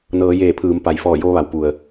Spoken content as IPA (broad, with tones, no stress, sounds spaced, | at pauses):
n ɤː˩˧ j eː˧˩ pʰ ɯː˩˧ m p a˩˧ j f ɔː˧˩ j oː˧ ʋ a˩ w p u˩ ə̯